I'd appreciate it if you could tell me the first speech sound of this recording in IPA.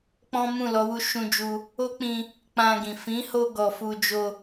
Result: k͡p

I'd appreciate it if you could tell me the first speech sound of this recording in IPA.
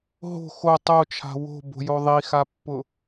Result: ɦ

